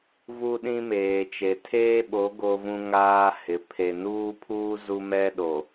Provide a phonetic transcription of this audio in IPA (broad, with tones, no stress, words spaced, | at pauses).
vu˦ɗĩ˦meː˨t͡ʃe˨ tʰeː˦ɓo˨˦ ɡo˦vũ˦ŋaː˦ hɪ˨˦ pʰe˨nuː˦pʰuː˦ zu˦mɛ˦ ɗo˨